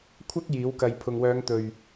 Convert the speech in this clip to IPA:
kʷʰ ɐ˥ k̚ j iː˨˥ w k ɐ˨˧ j pʰ ʊ˨ ŋ w œː˨˧ ŋ t̪ ɵ˨˩ ɥ

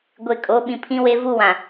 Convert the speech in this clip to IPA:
ɡʷ e˨ kʼ o˨˦ ɓ ĩ˨ pʰ ĩ˦ w e˦ v u˦ w ã˨

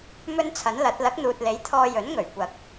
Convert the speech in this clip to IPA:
m ɵ˥ n t͡sʰ ɐ˨˥ n l ɐ˨˥ t̚ l ɐ˨˥ k̚ n̪ uː˨ t̚ l e˨˥ j t̪ʰ ɔː˧ j ɵ˨˥ n ŋ ɵ˨˩ ɥ kʷ ɐ˨ k̚

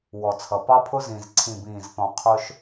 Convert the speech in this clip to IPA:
w ɔ˨ t͡sʰ ʌ˨ p ɑ˦ pʰ ʊ˦ z ĩ˨ z ǀʰ ĩ˨ b ĩː˨ z θ ɔ̃˨ qʰ ʊ˦ ʃ

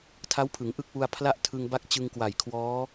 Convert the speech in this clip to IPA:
tʰ a˦˥ w pʰ ɯ˩˦ ŋ ʔ ɯ˦˥ k̚ w u˧ a̯ pʰ l a˥˩ ʔ tʰ ɯ˧ ŋ b a˥˩ k̚ t͡ɕ ɯ˧ ŋ k w a˨˩ j kʰ w ɔː˦˥

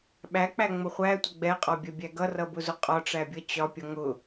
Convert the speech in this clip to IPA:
ɓ æ k͡p æ ŋ͡m ʊ χʷ æ tʷ ə ɡ͡b ɛ qʼ ɒ bʲ ɜ bʲ æ ɡ ʌ r ʌ b ʊ z ʊ qʼ ɒ ʈ͡ʂ æ bʲ ʌ t͡ɕ ɒ pʲ ʌ ŋ ʊ

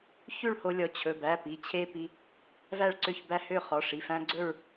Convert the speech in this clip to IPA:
ç ʉ˥˨ ɭ h o˦ lʲ ɔ˩˧˩ t͡ɕʰ ɵ˩˧˩ b æ˩˧˩ p i˩˧˩ t͡ɕʰ e˦ p i˩˧˩ | v æ˥˨ ɭ ǀ ø˥˨ ç b æ˦ h ø˥˨ χ ɔ˩˧˩ ʂ i˩˧˩ f æ̃˦ ɡ͡ǀ ɵ˥˨ ɹ

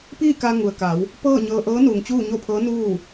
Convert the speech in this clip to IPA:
p iː˥˨ k a˧ ŋ u˩ ə̯ k a˩˧ w | p ɤː˥˨ ɲ ɤː˧ ʔ ɤː˧˥ n uː˩ ŋ t͡ɕ uː˥˨ ɲ o˥˨ pʰ ɤː˧˥ n uː˥˨

